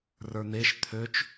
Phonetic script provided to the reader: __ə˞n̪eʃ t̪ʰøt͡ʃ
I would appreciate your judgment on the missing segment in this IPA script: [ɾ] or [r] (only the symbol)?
r